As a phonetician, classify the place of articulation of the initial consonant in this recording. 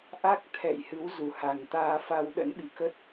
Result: glottal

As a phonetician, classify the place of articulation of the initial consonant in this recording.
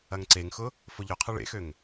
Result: velar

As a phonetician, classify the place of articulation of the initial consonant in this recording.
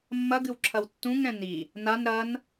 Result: labial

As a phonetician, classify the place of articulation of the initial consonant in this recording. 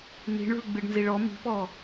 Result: alveolar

